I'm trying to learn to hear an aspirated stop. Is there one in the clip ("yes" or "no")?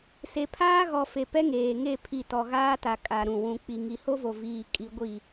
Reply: yes